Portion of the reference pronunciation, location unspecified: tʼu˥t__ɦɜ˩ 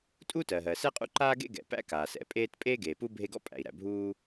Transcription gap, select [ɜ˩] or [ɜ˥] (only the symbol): ɜ˩